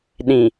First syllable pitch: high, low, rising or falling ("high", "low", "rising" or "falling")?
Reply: low